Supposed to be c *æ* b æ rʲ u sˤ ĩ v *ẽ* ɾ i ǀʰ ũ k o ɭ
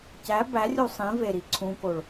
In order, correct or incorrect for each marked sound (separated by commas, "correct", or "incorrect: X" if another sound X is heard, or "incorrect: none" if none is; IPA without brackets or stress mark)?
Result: correct, incorrect: e